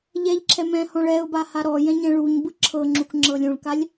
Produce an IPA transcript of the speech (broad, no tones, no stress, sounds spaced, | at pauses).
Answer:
ʎ ɛ ʎ ǁʰ ɛ m ɛ̃ h ɔ̃ ɭ ɛ ʊ̯ b a h a ɾ ɔ j ɛ̃ ɲ ɛ̃ ɭ u ɲ b ɯ ǁʰ ɤ ŋ͡ǁ u k ŋ͡ǁ ɤ lʲ ũ ɭ k a lʲ